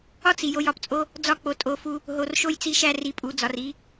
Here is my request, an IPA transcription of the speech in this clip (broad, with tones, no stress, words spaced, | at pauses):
ɒ˦t͡s i˨jo˧jɒ˧pt͡sʼo˦ | d͡zɒ˧k͡po˨ tʼo˧fu˧ | ɦo˨rʃo˦jt͡si˧ʃæ˦ ri˧pʼu˨˦d͡zɒ˧r i˧